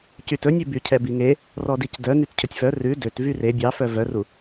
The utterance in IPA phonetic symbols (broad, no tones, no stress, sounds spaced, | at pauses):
c y t ɵ nʲ ʉ b y cʰ ɛ b i ŋ e | r ɔ d i c d œ n y t cʰ ɵ tʲ f œ r ʉ d ø t v y r e bʲ ɑ f œ v œ r u